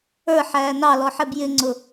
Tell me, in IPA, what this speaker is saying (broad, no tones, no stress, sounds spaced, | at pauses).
ə˞ ħ æː n ɑ l ɔ ħ ɛ b j ɪ ŋ͡ǀ ʊ